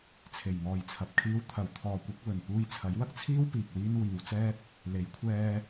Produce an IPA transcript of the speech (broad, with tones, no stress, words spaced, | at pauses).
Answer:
t͡sʰe˨˩jŋɔː˨jt͡sʰɐ˨p̚kʰiː˧w t̪ʰɐ˨˧wt̪ʰɔː˨kʷɐ˨˥k̚ wɵ˨˩n puː˧j t͡sʰɐ˨˥jwɐ˥k̚t͡sʰiː˥w piː˨k̚wiː˥n wiː˨˧wt͡sɛː˥t̚ | le˨˧jkʷʰɛː˧